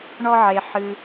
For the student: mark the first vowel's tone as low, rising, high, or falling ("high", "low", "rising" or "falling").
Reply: high